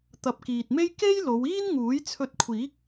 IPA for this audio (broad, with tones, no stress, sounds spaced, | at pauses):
t̪ ɐ˨ p̚ k iː˨ t̚ m e˥ j k e˥ j l o˨˧ w iː˥ n ŋ uː˨˥ j t͡sʰ ɵ˧ t̚ kʷʰ iː˨˥ k̚